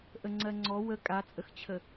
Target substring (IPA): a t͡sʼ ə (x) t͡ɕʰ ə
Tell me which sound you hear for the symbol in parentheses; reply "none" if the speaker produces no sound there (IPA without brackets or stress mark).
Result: x